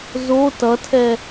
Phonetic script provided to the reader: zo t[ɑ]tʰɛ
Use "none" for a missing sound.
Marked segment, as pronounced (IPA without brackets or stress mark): ʌ